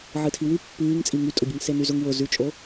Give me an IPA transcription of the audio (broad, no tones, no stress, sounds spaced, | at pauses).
ʕ ɨ tʰ i w ʉ pː ɨː ŋ t͡sʼ i ŋ y tʼ o ɟ ɨ ŋ s e n y z ʊ ŋ w ʊ z ʉ t͡ʃʼ o